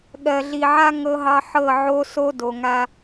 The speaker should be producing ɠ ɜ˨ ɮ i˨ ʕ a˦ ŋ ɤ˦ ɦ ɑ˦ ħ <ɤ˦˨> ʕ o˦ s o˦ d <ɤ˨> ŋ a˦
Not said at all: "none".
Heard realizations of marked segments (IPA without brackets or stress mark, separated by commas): ɤ˦˨, o˨